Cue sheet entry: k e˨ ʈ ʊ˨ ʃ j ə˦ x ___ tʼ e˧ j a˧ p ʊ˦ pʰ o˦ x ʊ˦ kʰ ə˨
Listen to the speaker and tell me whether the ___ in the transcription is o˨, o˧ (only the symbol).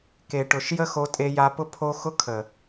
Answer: o˧